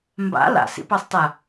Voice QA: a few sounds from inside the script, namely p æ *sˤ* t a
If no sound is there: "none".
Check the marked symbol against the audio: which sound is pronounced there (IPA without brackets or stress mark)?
sˤ